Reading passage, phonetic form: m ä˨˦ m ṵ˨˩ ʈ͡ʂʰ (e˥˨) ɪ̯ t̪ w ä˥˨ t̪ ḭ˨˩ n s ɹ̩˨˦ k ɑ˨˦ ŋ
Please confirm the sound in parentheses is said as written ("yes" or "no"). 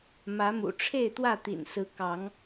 yes